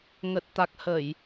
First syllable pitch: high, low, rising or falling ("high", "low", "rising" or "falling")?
low